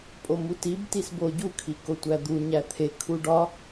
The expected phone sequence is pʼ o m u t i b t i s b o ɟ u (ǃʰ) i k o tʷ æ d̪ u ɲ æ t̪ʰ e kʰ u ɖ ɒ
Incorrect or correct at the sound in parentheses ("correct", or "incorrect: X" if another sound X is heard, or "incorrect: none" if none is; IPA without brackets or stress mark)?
incorrect: kʰ